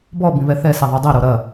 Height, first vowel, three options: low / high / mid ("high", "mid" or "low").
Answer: mid